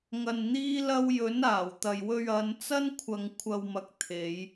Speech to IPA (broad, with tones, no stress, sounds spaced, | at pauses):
ŋ ɐ˧ n n̪ iː˥ l ɐ˥ w j ɵ˨˥ n aː˨˩ w t̪ ɐ˨ j w ɵ˧ ɥ ɐ˨˧ n t͡s ɐ˥ n kʷʰ ɐ˨ ŋ kʷʰ ɐ˨ w m ɐ˨ k̚ t̪ʰ e˨˧ j